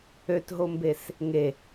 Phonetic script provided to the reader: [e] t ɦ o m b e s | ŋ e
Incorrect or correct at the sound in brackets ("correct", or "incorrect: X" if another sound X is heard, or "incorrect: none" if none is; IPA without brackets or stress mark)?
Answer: incorrect: ø